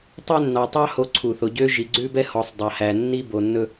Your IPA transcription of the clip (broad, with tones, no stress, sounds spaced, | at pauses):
tˤ ø˧ nː ɑ˨ tˤ ɑ˧ h o˧ ǀʰ u˨ θ o˨ ɟ ø˦ ʒ i˨ ɡ͡ǀ ʉ˧ b ɛ˧ h ɔ˨ sˤ dˤ ɑ˨ h æ˨ nː i˧ b o˨ nː ɵ˧